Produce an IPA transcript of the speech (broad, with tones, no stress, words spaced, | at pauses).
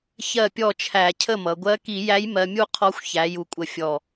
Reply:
çɜ˥˨pʲɔ˥˨t͡ʃʰæ˧˩˧ cʰə˥˨mʌ˩˧ ɡʷɜ˧˥ki˧˩˧jæ˧˥j mɜ˧mʲu˥˨ qʰɔ˧˥xʷ çæ˩˧ju˨˩kʷʼə˨˩ fʲɔ˨˩